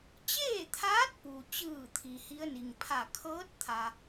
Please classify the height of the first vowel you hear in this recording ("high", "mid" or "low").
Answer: mid